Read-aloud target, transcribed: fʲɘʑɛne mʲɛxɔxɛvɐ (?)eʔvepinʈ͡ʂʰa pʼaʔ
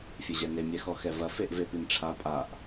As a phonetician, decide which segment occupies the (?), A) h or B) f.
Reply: B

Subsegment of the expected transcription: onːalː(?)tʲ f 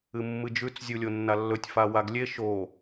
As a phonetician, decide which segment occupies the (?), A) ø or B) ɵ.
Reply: B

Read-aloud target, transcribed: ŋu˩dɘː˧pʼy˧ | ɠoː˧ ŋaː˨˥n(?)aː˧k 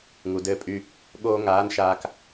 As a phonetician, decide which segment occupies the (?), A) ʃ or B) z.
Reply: A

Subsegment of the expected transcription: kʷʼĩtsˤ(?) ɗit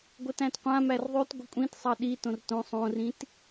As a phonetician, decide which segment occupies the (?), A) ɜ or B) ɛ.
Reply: A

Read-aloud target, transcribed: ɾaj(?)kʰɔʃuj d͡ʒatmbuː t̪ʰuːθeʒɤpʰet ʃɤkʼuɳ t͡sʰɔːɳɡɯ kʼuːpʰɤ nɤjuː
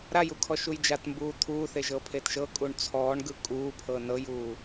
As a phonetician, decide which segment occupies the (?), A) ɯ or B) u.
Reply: B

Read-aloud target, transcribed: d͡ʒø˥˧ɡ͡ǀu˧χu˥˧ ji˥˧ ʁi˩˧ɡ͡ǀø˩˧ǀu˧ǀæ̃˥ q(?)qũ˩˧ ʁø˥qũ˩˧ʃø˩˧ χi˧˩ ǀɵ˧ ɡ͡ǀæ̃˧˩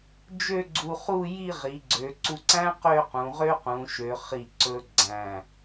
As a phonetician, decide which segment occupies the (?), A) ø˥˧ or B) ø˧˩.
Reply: A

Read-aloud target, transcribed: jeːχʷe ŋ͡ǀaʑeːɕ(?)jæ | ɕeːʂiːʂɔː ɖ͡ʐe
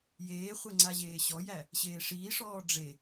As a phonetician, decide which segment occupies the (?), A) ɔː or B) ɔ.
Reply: B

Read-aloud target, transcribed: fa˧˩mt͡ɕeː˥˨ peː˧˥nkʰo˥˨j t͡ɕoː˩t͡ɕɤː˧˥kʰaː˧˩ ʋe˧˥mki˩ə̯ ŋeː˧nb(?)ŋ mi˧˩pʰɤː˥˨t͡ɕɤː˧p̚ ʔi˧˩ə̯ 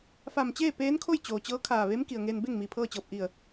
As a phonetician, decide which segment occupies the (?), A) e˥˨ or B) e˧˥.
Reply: A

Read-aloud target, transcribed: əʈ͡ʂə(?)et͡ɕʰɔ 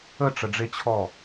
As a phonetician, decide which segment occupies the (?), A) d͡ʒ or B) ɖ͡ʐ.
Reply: B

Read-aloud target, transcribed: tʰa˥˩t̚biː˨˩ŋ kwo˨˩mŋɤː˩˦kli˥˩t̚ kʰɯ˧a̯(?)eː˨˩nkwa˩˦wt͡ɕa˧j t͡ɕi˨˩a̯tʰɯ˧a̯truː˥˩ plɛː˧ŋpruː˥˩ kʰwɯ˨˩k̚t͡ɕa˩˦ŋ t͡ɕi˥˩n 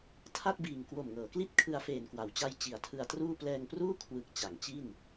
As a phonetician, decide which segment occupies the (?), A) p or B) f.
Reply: B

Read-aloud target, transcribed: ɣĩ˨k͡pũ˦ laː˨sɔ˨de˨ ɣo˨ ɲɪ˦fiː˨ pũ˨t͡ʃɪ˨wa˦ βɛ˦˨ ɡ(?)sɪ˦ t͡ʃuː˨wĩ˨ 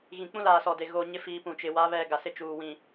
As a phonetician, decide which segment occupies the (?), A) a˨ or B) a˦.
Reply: A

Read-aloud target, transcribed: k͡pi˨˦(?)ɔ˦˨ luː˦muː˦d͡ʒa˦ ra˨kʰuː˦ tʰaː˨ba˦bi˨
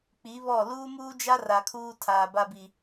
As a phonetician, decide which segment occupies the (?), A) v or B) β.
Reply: B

